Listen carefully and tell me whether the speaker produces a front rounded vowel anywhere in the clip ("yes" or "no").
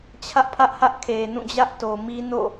no